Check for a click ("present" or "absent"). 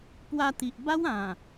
absent